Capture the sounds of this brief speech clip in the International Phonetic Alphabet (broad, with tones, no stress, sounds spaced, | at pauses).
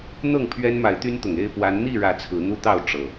n̪ ɤ˥˨ ŋ pʰ ɥ ɛ˦ n m a˨˦ ɪ̯ t̪ y˦ n t̪ ʊ˨˩ ŋ e˥˨ ɪ̯ p w a˨˦ n n̪ i˥˨ ɻ ä˨˦ t͡sʰ ɹ̩˨˦ n̪ u˦ t̪ ɑ˥˨ ʊ̯ ʈ͡ʂ ɤ˨˩